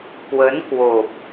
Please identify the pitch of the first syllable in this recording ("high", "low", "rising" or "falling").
rising